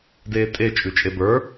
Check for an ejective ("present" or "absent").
present